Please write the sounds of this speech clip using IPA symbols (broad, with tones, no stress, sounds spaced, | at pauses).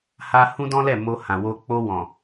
h a˦ h ũ˦ d ɔ̃˦ l ɛ˦˨ m o˧ h ã˨ w o˧ k͡p o˧ w ɔ̃˨